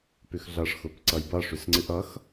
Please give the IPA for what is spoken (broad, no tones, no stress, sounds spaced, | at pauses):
p ʉ x ɮ ʌ ʂ x ʊ p ǀ ʌ j b ʌ ʂ ʉ s ŋ͡ǀ ɨ ʔ ʌ x